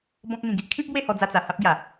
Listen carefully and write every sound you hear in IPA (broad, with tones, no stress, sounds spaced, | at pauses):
b ɔ̃˦ k̚ ŋ ĩ˧ ɡ i˦ ʔ kʰ ĩ˦ p̚ b w e˥˧ h ɔ˧ d͡z a˧ t͡s a˨˩ h a˦ p̚ ɡ j a˨˩